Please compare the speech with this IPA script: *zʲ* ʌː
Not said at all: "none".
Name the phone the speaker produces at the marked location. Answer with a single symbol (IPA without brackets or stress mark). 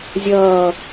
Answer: zʲ